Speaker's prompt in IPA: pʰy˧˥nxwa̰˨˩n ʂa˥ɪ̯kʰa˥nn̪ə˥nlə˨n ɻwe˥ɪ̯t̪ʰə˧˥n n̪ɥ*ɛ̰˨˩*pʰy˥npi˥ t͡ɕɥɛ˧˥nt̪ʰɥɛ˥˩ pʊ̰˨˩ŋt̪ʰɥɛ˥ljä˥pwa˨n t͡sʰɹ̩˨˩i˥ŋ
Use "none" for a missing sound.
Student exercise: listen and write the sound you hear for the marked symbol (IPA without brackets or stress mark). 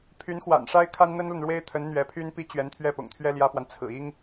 ɛ˧˥